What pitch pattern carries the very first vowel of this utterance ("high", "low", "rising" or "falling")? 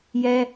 low